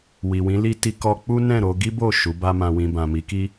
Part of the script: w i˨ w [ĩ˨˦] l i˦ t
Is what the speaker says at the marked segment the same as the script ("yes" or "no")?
yes